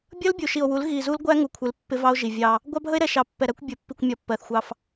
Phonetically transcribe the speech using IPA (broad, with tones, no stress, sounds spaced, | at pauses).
bʲ ʌ˦ l bʲ u˨ ʃ i˨ o̯ w u˨˦ l ɣ i˨ z u˦ l ɡʷ æ˦ ŋ u˨ kʷʰ ɪ˨˦ l pː ɪ˦ v ɑ˦ o̯ ʒ i˨ vʲ ɑ˦ | ɡʷ ɑ˦ bʱ ə˦ e̯ ɾ ɛ˨ ʃ ɑ˨ pː ɛ˨ ɾ æ˦ kʷ bʲ ʊ˨˦ pː i˨ kʷ mʲ ɒ˨˦ pː ɜ˨ θ xʷ ɑ˦ f